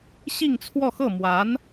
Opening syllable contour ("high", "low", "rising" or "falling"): falling